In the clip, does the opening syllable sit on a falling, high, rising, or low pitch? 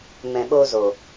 low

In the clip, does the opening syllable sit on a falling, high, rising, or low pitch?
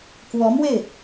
rising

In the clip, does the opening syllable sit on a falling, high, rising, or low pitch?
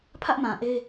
high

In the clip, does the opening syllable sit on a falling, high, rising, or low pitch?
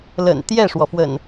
low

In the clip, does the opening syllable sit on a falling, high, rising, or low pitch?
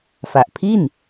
low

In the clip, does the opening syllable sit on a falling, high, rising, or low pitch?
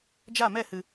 falling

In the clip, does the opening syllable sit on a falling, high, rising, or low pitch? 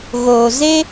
low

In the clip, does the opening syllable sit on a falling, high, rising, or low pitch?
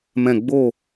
falling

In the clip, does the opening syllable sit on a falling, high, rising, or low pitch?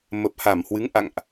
low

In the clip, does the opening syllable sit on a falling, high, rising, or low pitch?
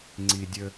high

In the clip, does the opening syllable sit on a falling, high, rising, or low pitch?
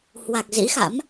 low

